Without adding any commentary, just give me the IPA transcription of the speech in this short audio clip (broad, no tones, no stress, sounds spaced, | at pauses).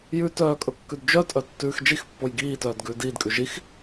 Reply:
j ʉ t œː kʼ ɵ kː ʉ d d͡ʒ œ tʼ œ tː ʉː x d͡ʒ i x pː o j ɡ iː t œː d ɡ ʉː d iː d kʼ ʉ ʒ i x